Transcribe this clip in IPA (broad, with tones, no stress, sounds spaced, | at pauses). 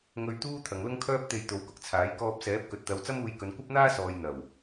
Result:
ŋ ɵ˧ ɥ t̪ uː˥ t̪ʰ ɐ˨ ŋ l ʊ˥ ŋ kʰ œː˥ p̚ t̪ e˧ j t̪ o˨˥ w k ʊ˨ k̚ t͡sʰ aː˨˥ j k ɔː˧ p̚ s ɛː˨˥ p̚ k ɵ˨ t̚ t̪ ɐ˨˧ w t͡s ɐ˥ m uː˧ j k ɵ˨˧ n kʷ ɐ˥ p̚ n̪ aː˥ s ɔː˨ j n̪ ɐ˨˩ w